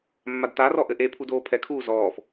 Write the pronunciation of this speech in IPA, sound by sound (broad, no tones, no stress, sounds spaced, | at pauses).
mː a d t a r ɔ ʔ ɘ ʔ e pʰ u d oː pʰ ɛ kʰ uː z ɔː f